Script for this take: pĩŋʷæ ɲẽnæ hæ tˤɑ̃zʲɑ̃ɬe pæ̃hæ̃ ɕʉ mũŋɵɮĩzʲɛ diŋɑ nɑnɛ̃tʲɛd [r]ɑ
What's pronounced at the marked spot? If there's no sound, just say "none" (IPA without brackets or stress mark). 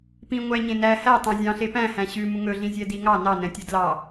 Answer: l